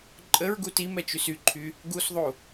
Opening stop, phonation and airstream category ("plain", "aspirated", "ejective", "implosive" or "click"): click